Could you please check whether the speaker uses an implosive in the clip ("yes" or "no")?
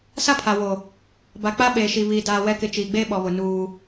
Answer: yes